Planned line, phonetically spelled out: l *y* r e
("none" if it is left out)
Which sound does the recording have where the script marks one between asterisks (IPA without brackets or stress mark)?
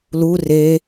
u